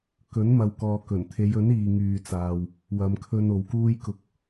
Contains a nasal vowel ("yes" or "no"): no